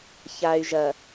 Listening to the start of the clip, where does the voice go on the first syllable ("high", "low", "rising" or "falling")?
low